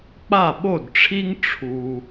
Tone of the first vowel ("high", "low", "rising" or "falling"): falling